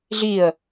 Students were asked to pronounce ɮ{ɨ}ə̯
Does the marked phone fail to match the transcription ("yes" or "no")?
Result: yes